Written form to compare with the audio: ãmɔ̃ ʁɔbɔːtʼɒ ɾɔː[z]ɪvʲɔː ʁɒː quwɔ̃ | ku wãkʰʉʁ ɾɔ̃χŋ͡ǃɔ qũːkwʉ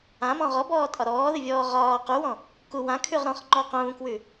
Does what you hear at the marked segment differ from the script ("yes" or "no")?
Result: yes